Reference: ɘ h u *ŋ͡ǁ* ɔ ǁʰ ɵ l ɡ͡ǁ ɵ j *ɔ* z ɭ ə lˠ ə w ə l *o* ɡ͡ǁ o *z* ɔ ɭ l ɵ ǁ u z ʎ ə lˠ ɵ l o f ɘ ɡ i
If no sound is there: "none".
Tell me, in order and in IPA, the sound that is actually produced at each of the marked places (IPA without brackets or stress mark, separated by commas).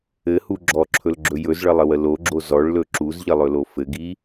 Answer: ɡ͡ǁ, ɵ, o, z